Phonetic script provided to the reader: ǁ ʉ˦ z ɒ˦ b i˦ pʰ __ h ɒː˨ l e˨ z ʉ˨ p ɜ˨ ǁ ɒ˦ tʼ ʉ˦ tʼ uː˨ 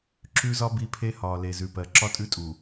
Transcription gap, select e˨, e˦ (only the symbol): e˦